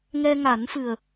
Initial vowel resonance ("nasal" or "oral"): oral